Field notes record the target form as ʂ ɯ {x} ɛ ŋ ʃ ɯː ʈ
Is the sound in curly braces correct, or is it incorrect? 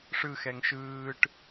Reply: correct